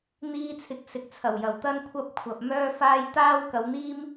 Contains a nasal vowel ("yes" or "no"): no